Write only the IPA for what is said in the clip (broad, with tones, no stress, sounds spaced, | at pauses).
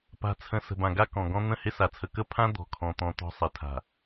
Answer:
p a̤˨ t͡sʰ ə̃˨ s ə̤˨ b ã˨ ɡ a˦ k ɔ̃˨ ɡ ɔ̃˦ n̪ ə̃˦˨ h ɪ˦ s a˨ t͡sʰ ə˨ k ə˦ pʰ ã˦ d̪ ɔ̤˨ kʰ ɔ̃˨ t̪ ɔ̃˨ t̪ ɔ̤˦ sˤ ɪ˨˦ tʰ a̤˨